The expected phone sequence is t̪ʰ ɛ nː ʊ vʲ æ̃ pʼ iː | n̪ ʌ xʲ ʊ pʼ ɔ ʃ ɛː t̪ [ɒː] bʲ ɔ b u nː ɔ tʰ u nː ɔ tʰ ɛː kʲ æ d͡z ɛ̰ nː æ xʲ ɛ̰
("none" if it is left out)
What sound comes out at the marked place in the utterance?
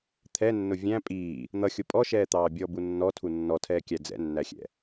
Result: ɑː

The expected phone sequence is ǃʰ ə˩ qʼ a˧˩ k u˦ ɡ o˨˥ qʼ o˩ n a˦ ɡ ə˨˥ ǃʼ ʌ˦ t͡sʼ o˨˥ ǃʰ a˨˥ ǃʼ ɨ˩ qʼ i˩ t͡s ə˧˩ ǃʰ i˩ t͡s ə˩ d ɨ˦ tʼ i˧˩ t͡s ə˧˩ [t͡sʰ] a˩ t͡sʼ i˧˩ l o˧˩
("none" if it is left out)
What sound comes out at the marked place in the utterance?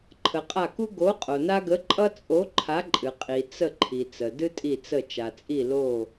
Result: t͡ʃ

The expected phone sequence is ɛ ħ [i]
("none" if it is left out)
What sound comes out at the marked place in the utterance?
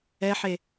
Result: e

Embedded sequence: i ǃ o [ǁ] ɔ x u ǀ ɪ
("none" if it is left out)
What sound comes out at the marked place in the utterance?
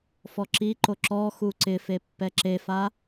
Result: ǁ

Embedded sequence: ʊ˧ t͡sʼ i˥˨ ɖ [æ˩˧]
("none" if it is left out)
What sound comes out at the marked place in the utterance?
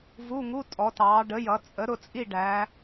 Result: æ˩˧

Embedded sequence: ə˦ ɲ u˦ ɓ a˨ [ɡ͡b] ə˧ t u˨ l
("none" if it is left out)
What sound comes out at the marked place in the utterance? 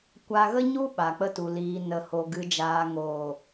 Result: k͡p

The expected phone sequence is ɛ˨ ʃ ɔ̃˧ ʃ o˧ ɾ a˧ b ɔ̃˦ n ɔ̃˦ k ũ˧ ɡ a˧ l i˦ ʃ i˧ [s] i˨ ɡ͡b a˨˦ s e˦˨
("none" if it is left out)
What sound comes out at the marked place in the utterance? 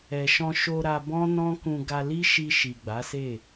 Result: ʃ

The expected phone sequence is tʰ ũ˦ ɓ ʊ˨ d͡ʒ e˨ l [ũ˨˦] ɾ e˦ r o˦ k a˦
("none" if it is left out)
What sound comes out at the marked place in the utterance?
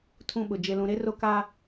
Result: ũ˨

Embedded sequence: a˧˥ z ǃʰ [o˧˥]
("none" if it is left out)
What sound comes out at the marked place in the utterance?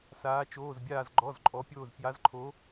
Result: o˧˥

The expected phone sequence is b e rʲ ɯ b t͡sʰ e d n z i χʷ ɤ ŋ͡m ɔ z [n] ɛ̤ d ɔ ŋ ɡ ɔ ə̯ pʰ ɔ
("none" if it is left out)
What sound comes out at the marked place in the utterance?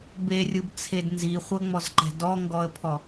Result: ǃ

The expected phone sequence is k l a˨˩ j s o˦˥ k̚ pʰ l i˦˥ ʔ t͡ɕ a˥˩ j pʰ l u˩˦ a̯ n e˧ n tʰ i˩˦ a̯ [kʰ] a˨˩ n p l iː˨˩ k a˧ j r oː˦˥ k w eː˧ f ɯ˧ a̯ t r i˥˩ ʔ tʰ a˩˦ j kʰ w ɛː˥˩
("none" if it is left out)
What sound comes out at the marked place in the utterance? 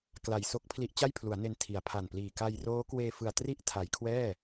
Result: pʰ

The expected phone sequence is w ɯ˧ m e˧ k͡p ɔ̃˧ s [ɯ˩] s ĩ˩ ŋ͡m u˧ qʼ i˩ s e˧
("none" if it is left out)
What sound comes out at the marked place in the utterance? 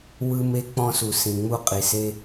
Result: u˩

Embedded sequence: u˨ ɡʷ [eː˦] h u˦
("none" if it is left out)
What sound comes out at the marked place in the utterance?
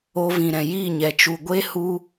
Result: e˦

